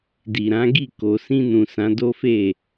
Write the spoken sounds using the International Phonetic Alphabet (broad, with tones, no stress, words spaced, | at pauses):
di˨ɾã˨˦ɡi˦˨ ko˨sĩ˧nũ˨ sã˨˦do˦fe˦˨